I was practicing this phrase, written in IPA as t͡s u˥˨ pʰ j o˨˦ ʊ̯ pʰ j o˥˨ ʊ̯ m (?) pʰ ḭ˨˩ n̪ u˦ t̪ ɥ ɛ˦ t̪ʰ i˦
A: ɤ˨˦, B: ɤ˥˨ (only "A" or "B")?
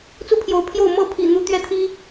B